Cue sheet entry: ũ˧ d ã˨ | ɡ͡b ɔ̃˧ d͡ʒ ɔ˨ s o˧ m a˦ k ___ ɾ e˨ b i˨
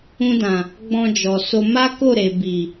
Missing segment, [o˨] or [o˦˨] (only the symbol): o˦˨